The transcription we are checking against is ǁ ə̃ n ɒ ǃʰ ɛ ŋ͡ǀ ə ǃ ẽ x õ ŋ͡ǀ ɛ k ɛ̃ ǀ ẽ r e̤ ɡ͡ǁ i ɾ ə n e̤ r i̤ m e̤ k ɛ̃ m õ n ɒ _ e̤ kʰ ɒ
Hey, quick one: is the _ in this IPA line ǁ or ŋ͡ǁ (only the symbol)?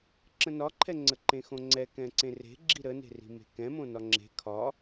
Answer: ŋ͡ǁ